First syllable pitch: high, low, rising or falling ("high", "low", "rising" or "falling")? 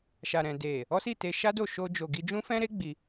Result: low